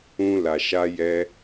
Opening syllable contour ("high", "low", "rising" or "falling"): high